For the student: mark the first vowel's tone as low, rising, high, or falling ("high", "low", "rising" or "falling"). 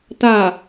low